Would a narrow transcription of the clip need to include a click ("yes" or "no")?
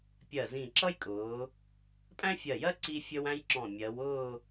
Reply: yes